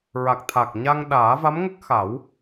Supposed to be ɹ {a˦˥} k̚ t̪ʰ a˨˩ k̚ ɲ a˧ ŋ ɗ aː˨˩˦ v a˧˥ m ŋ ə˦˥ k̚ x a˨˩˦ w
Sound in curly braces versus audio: incorrect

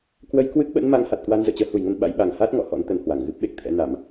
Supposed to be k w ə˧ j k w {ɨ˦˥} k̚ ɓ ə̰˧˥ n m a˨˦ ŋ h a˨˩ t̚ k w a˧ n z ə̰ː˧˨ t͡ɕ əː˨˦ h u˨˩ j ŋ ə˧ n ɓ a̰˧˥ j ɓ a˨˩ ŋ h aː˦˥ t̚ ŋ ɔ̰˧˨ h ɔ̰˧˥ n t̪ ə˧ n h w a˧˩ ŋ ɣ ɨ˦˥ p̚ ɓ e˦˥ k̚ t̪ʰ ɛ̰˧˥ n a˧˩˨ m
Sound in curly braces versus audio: correct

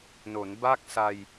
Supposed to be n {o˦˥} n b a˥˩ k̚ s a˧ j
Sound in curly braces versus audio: incorrect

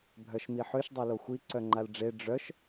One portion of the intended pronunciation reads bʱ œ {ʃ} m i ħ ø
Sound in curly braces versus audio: correct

